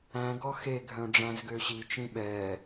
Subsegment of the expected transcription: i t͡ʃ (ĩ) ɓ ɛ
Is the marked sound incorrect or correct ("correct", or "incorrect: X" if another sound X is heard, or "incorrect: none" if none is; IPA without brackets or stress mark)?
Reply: correct